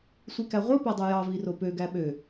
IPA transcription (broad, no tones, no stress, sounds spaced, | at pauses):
sʷ i k æ ʁʷ ɯ p æ dˤ u j ɑ v i r o p ø ɡ æ ɓ ø